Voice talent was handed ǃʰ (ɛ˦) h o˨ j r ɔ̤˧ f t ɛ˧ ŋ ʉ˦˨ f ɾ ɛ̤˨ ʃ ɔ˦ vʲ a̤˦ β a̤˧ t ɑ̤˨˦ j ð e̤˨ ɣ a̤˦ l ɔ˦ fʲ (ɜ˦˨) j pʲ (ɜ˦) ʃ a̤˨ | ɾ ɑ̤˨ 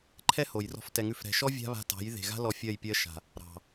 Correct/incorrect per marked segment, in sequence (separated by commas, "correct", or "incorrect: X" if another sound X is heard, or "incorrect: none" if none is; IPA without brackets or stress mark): correct, correct, correct